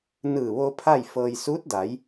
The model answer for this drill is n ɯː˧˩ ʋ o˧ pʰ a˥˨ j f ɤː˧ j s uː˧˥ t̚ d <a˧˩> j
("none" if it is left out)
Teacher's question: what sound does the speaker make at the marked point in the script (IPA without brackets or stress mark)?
a˩˧